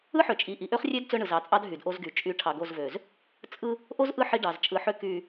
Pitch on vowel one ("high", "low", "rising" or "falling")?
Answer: high